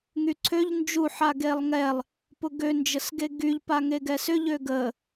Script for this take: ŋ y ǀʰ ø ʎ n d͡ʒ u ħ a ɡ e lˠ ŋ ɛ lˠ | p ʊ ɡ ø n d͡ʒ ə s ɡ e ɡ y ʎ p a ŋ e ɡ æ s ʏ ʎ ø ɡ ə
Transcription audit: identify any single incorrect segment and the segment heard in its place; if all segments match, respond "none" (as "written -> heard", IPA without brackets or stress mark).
æ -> ɛ